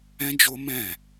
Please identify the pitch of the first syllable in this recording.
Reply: high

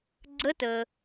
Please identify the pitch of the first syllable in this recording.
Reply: rising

